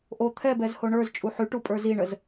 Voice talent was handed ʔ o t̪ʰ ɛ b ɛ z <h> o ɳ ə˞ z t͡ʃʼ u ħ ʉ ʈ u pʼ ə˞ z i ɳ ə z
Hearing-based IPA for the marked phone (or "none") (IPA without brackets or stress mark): h